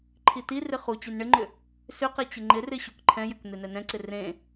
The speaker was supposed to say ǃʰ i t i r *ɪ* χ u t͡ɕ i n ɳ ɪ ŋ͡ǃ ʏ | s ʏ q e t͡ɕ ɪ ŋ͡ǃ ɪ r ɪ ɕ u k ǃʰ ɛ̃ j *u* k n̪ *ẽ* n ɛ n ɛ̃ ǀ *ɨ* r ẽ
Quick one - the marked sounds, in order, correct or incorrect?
correct, incorrect: ʏ, incorrect: e, incorrect: ɪ

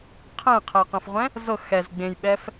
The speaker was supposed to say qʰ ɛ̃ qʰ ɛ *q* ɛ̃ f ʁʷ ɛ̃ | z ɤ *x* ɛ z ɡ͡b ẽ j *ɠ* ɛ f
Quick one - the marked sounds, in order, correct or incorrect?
correct, correct, incorrect: ɓ

